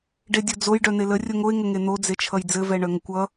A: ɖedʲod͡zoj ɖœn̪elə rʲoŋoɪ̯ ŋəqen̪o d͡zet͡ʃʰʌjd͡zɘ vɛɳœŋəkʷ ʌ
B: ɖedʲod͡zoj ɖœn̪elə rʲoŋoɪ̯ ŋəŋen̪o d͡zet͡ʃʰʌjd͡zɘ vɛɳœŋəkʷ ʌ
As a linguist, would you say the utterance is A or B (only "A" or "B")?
B